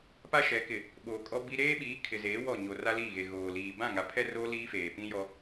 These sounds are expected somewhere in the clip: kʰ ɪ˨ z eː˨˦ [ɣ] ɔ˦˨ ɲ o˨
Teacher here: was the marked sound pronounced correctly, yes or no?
no